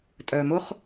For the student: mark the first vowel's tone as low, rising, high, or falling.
low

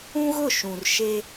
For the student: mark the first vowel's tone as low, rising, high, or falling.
high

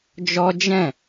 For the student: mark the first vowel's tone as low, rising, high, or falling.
high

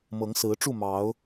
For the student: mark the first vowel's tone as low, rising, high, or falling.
rising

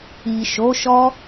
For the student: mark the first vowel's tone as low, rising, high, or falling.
low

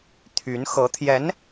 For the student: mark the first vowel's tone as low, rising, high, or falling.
rising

